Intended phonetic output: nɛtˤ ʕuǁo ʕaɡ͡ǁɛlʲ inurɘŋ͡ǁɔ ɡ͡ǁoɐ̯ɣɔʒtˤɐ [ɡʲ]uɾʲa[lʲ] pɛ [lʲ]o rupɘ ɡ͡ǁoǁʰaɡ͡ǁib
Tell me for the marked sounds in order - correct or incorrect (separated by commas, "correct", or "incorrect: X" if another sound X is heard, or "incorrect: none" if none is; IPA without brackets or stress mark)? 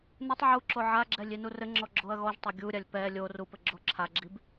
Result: correct, correct, correct